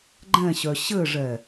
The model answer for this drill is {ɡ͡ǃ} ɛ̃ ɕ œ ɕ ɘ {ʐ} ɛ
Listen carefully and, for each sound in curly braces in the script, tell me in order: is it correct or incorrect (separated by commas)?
correct, correct